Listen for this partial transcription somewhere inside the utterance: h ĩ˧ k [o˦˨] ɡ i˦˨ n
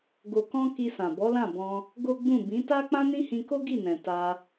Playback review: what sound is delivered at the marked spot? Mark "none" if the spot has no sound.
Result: o˦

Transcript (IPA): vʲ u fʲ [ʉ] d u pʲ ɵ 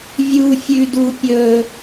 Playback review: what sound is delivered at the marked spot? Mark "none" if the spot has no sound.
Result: ʉ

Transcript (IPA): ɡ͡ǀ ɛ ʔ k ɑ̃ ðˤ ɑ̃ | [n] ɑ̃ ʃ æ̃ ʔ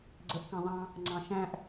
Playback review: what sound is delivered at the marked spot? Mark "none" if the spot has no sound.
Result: ŋ͡ǀ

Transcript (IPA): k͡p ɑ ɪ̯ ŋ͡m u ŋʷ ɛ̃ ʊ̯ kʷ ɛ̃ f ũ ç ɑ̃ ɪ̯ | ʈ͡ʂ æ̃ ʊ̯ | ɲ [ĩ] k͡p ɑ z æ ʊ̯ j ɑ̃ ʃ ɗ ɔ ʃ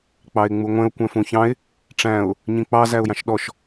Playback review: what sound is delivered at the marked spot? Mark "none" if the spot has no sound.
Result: ĩ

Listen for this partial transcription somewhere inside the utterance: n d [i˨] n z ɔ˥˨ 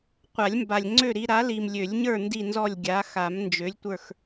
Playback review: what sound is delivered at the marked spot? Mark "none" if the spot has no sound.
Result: i˥˨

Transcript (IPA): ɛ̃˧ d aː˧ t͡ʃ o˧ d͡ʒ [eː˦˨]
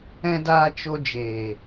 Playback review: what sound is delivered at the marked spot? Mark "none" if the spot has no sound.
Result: eː˨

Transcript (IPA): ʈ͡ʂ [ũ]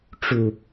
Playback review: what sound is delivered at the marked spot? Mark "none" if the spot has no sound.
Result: u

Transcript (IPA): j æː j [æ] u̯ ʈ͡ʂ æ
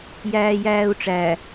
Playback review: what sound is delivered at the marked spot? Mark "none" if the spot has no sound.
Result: æː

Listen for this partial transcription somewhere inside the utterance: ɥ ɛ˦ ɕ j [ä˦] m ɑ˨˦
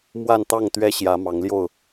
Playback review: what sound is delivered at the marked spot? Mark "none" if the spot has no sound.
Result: ä˨˦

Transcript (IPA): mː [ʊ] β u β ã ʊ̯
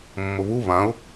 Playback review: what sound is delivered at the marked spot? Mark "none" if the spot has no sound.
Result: ʊ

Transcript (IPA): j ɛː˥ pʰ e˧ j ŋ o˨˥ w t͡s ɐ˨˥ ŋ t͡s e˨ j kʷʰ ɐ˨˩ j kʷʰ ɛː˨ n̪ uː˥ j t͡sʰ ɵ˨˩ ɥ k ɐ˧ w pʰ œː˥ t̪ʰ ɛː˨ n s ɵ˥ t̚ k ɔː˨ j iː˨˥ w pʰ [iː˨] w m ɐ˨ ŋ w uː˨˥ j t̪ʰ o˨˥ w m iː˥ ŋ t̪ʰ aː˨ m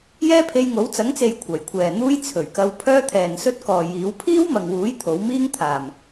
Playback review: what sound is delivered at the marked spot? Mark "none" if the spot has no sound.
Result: iː˥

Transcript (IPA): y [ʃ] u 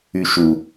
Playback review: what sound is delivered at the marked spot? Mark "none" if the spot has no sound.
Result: ʃ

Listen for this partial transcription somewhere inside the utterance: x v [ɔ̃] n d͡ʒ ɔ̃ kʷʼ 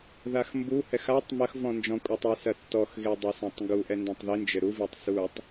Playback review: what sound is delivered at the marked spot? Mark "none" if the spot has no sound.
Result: ɔ̃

